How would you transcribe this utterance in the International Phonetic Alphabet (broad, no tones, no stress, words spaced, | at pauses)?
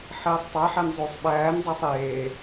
ħeːsˤtˤæħæn zˤosˤ ɓæːnzˤæsˤ eː